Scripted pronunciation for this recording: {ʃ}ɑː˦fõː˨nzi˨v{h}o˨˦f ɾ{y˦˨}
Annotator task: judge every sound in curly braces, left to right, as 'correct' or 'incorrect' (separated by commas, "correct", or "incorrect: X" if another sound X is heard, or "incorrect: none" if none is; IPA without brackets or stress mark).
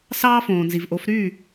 incorrect: s, incorrect: ʔ, correct